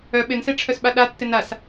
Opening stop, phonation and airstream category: implosive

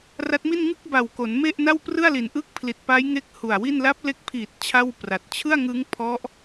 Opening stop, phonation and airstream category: plain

